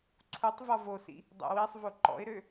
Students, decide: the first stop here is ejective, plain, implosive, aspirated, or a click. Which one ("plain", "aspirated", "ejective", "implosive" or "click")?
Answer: click